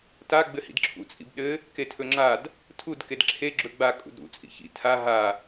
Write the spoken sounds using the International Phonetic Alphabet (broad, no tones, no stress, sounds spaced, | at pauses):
t a ɡ͡b ɘ h ḭ d ǁʰ ṵ t͡sʼ ḭ b ɗ ɘ | k e tʰ ɵ ŋ͡ǁ a d | tʰ u d k e d ǁʰ e ɡ͡ǁ ɵ ɡ͡b a kʼ ṵ d ɾ ṵ t͡sʼ ḭ ç ḭ tʰ a ɦ a